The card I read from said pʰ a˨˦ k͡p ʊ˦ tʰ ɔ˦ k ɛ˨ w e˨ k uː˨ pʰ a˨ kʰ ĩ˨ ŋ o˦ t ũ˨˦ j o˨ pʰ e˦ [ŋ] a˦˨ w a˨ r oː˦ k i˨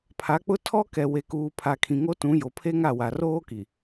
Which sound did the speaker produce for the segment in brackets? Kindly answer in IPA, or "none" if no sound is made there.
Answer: ŋ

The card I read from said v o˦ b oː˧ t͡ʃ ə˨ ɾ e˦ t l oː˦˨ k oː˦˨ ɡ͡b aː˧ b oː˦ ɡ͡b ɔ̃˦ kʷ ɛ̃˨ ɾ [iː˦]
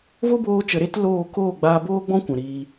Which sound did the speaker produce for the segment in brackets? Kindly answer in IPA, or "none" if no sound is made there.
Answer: iː˧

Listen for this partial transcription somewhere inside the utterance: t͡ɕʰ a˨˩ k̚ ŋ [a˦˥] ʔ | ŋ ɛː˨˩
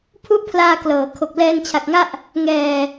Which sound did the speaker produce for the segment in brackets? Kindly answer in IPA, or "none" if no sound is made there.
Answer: a˥˩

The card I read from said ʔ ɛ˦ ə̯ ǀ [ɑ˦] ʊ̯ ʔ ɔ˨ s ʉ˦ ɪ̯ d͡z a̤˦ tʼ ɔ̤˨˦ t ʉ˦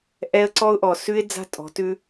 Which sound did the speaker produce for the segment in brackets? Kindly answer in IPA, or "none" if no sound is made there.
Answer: ɔ˦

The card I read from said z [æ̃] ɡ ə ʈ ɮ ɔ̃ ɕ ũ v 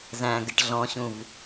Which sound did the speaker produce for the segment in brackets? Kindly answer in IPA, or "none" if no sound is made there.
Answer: æ̃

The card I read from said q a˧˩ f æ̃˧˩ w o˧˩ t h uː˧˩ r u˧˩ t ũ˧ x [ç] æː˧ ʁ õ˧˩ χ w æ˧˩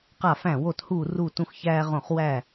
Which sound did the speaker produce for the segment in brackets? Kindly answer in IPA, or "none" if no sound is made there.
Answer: ç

